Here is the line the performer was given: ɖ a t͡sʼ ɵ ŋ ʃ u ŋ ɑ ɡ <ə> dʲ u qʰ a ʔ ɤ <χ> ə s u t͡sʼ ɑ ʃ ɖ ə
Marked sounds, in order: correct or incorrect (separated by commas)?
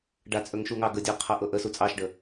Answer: correct, incorrect